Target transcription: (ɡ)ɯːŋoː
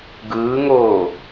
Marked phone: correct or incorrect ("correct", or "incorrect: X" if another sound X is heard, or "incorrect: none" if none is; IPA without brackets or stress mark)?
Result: correct